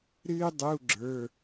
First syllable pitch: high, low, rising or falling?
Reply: high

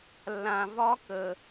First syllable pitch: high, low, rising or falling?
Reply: low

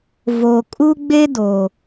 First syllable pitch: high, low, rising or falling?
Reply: low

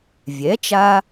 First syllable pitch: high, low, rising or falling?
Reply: rising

